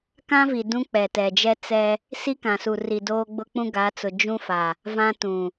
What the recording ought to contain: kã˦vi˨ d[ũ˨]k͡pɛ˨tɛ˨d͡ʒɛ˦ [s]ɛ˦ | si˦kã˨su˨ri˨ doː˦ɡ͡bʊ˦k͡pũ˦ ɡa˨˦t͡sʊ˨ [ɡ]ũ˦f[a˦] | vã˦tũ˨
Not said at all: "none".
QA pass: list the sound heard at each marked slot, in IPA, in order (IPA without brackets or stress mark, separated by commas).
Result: ũ˦, t͡s, d͡ʒ, a˨